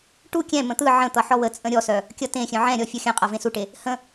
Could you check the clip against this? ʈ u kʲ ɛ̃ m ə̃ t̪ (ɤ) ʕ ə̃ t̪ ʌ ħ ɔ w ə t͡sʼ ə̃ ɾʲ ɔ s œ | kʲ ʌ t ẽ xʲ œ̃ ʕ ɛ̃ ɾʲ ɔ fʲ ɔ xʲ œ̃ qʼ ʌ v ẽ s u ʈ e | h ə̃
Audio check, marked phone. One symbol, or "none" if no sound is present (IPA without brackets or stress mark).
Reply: ɯ